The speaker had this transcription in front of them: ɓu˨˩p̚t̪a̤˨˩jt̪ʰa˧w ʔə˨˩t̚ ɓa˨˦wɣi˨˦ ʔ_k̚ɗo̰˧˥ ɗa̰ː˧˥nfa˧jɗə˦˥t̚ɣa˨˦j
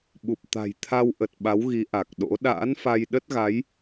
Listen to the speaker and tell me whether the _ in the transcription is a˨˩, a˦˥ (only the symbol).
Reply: a˨˩